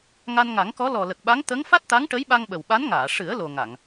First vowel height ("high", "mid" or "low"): low